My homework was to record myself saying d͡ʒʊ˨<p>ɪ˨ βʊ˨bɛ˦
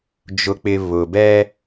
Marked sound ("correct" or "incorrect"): incorrect